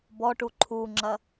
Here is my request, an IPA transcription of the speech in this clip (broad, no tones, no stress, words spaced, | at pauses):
bɔʈu ǃʰuŋ͡ǁɐ